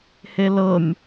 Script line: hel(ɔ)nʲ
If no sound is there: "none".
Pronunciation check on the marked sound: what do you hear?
ɤ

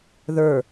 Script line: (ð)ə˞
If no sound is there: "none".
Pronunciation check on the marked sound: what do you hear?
ð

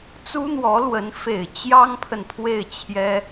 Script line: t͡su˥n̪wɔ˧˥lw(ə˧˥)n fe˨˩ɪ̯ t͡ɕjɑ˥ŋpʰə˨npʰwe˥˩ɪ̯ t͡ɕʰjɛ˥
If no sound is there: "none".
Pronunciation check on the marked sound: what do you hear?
ə˧˥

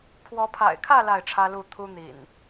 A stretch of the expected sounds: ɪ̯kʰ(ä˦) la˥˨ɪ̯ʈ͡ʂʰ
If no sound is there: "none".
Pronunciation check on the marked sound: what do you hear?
ä˥˨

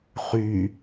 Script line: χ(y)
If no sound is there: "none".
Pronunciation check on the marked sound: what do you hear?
y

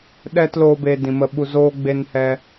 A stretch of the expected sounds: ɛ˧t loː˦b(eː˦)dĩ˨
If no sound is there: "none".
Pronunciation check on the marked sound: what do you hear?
eː˧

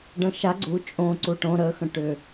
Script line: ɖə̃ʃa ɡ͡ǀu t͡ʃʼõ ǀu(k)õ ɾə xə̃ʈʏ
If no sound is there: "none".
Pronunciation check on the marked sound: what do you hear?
ʈ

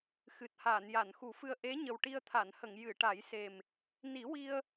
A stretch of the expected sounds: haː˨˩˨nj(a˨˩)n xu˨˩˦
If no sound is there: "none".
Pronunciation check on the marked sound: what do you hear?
a˨˩˨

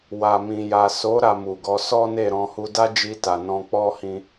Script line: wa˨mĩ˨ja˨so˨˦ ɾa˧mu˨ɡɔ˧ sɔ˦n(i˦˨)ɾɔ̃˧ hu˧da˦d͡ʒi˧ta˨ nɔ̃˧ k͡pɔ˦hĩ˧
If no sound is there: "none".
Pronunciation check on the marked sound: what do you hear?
e˦˨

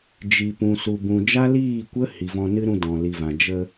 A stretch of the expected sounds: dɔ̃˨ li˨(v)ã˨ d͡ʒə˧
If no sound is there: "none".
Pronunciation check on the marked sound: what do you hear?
v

